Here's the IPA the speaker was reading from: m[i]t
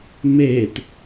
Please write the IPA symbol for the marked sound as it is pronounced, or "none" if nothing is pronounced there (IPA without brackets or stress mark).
e